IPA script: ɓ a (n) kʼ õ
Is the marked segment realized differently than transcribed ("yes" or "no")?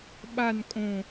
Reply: no